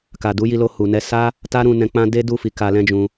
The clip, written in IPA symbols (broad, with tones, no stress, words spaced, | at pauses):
ka˨du˨˦ji˧lo˧ hu˨nɛ˧ sa˦ | ta˦ɾũ˧ nɛ̃˧k͡pã˦ de˦du˦˨ fi˨˦ka˧lɛ̃˦d͡ʒũ˧